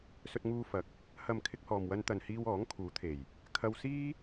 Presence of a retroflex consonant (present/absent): absent